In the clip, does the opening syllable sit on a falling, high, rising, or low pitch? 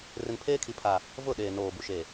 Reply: low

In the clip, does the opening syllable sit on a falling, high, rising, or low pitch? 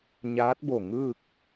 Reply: rising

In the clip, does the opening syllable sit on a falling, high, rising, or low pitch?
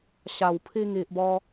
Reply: low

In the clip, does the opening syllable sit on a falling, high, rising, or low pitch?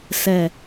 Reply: low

